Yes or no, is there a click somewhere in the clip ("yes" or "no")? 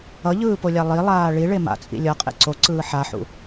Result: yes